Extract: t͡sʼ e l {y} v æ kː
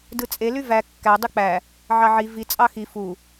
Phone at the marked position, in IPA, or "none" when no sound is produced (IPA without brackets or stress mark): y